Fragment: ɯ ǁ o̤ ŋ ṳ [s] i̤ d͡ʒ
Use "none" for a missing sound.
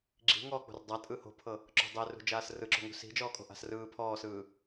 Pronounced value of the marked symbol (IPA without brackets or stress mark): s